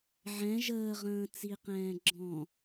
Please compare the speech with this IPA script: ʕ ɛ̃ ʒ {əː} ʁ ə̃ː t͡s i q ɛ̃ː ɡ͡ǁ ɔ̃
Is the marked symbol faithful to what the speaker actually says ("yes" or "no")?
yes